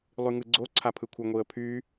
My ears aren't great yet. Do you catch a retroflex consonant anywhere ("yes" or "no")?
no